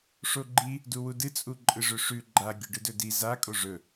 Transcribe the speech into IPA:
ʂ o ɡ͡ǃ i | d u w u d ɨ t͡sʼ u ǃʼ ɨ ʐ ɵ ʂ ʉ ɡ͡ǃ a ɡʲ ɵ ɖ ɨ d ɵ d i z a kʼ o ʐ ɵ

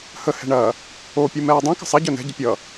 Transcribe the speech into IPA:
h ə h ɛ̤ ɳ ɐ | o pʲ u m ɛː dˤ ĩ k ə̤ sˤ ɐ ɟ œ n ɛ̤ ɟ ə pʲ ʌ

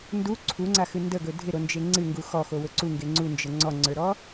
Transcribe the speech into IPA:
n d u ǀʰ u ŋ͡ǀ a x ɨ n d ə ɡ ɵ dʱ ɪ ɾ o n d͡ʒ e ŋ͡ǀ ɨ ŋ ɡ u x ɔ x o w ɵ ǀ u ŋ ɡ e ŋ͡ǀ u n d͡ʒ ə ŋ͡ǀ ɔ ŋ͡ǀ ə˞ ɾ ɔ

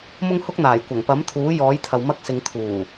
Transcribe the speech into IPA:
m ʊ˥ ŋ h ʊ˥ k̚ n̪ aː˨˩ j kʷ ɐ˨˩ ŋ p ɐ˨˥ m t̪ʰ uː˨˥ j ɔː˨˥ j t̪ʰ ɐ˨ w m ɐ˧ k̚ s ɪ˨˧ ŋ t̪ʰ uː˨˩

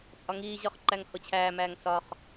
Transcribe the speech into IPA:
t͡sʼ ɒ ŋ iː ʑ ɒ χ ǃ æ ŋ h o t͡ɕʰ æː m æː ŋ s ɒ χ

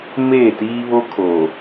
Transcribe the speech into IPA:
m eː˦˨ t iː˦ β o˦ kʰ oː˨

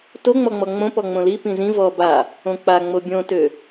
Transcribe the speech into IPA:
t o ŋ͡m ɔ ŋ͡m ɔ ŋ͡m õ p ɔ ŋ͡m õ l i p ĩ z ĩ v ɔ b a | õ k͡p a ŋ͡m o bʲ õ t ø

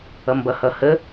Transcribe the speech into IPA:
ʌ m b ʌ h ʌ h ə

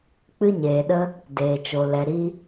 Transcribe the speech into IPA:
k͡p ɨ˧ ɲ eː˨ ɗ ə˧ | d eː˨ t͡ʃ o˨ l ɛ˨ ɾ i˧

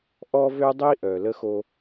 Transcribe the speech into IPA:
ʔ ɔ˦ v ø˦ dˤ i˦ ʔ œ˨ l ə˦ x o˦

